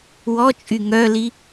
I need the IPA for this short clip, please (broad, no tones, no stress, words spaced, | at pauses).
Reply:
wɔt͡ʃʼy ŋœli